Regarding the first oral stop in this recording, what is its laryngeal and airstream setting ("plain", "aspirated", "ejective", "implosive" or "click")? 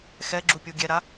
click